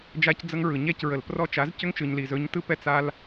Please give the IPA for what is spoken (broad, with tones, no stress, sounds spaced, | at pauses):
d͡ʒ a˧ c d͡z ə˧ ŋ ɹ ɯ˨ ɲ ɛ˦˨ c ɹ ə˨ l p r ɔ˧ t͡ʃ a˨˦ z c ʏ˦ ŋ t͡ʃ ɯ˨ ɲ l i˨ z ɵ˨˦ ɲ t ɯ˦ p ɛ˦ t͡s a˧ l